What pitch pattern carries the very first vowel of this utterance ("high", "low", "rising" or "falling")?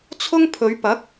high